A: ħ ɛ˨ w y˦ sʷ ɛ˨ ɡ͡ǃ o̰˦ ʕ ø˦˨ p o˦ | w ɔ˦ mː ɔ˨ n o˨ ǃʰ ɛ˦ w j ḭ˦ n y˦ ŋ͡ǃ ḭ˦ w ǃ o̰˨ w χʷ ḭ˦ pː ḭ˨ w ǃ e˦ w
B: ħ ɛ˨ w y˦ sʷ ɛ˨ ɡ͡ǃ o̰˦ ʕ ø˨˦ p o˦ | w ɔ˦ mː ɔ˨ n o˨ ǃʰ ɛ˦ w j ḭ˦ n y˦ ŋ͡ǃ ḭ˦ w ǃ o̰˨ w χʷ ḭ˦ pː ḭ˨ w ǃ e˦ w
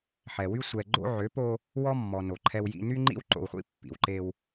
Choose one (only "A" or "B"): B